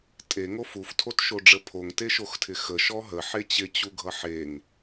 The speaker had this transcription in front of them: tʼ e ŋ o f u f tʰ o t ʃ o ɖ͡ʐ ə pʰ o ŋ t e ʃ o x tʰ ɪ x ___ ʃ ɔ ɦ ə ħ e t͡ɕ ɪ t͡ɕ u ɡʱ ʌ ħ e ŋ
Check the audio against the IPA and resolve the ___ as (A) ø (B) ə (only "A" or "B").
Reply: B